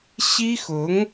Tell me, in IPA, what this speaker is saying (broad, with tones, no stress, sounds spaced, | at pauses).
ɕ i˥ x ʊ˧˥ ŋ